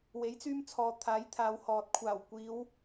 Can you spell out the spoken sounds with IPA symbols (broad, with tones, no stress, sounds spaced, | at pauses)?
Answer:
w e˨˥ j t͡s yː˧ m t͡sʰ ɔː˨ t̪ʰ aː˨˥ j t̪ʰ aː˨˧ w h ɔː˨ t̚ kʷʰ aː˨˩ w kʷ iː˨˧ w